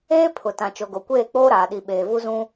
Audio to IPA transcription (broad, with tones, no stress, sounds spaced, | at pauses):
eː˦ pʰ ʊ˨ t ã˨ t͡ʃ o˨ ɡ o˨ kʷ eː˦˨ k͡p oː˦ ɾ aː˨ ɗ i˨ ɓ eː˨ v u˦ z ũ˦